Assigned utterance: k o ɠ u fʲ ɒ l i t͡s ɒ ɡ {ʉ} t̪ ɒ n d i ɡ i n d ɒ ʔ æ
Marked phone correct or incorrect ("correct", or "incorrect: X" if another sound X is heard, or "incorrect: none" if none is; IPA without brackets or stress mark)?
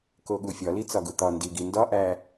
incorrect: u